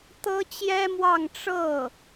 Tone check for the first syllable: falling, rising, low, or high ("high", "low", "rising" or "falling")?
high